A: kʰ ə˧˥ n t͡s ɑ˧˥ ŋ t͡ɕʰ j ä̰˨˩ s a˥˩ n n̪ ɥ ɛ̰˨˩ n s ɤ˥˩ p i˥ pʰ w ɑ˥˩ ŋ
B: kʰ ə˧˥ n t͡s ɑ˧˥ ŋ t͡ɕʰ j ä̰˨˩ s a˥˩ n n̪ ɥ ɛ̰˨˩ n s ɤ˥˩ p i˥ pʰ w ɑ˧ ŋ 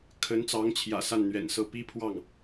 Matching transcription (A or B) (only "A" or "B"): A